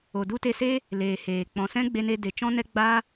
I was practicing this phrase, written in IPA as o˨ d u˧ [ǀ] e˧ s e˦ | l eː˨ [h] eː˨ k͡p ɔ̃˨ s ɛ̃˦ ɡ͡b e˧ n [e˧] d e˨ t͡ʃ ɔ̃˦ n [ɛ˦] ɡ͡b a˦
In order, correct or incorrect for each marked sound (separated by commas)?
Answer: incorrect, correct, correct, correct